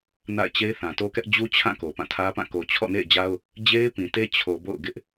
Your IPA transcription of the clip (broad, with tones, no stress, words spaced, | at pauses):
na̰˦˨ɪ̯t͡ɕe˦ɪ̯ θã˨to˦kɛ˦ʔ d͡ʑu˦t͡ɕʰã˦˨ ko˨pã˦˨tʰä˦pã˦˨ ko˨t͡ɕʰɔ̰˦˨nḛ˦˨ɪ̯d͡ʑa˦ʊ̯ | d͡ʑe˦ɪ̯pĩ˨te˦ t͡ɕʰo˨bo̰˦˨ʊ̯ɡɪ˦ʔ